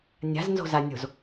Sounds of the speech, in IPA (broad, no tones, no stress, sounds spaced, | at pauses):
nʲ a̤ z n z o̤ z a nʲ o̤ z